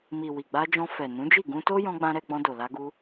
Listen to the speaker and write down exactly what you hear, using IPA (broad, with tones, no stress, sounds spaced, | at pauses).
m i˨ w i˨ ɡ͡b a˧ d͡ʒ ɔ̃˧ f ɛ˨ n ũ˨˦ d͡ʒ i˦˨ ɡ ũ˧ t o˦ j ɔ̃˦ ɡ͡b ã˦ ɾ ɛ˧ ɡ͡b ɔ̃˧ d o˨ l a˧ ɡ u˧